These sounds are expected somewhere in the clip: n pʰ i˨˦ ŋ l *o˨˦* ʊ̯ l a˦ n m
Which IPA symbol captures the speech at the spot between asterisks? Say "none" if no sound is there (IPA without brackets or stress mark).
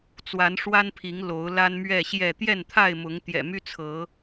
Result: o˨˦